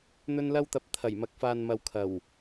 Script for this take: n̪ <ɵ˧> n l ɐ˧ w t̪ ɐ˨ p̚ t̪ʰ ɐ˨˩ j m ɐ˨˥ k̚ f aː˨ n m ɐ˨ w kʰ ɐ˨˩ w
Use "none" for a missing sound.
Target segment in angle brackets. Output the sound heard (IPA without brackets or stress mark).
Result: ɵ˧